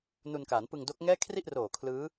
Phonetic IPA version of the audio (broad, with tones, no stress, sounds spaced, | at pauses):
n u˧ n k a˩˦ n p ɯ˧ ŋ d o˦˥ k̚ ŋ ɛː˥˩ kʰ r i˥˩ ʔ r oː˨˩ kʰ l ɯː˦˥